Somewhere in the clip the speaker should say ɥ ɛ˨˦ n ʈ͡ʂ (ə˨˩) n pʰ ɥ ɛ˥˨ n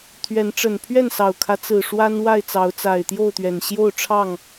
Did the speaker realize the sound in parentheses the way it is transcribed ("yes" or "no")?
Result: yes